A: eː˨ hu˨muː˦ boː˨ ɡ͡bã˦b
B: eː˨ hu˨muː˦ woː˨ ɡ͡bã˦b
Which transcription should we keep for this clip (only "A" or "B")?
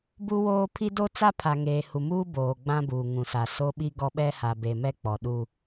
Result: A